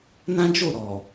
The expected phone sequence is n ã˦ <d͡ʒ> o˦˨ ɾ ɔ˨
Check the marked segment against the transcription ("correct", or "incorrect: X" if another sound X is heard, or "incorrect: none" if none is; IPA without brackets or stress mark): correct